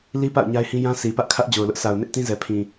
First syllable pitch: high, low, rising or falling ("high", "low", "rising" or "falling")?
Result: high